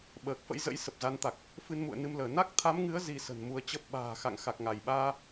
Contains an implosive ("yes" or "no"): yes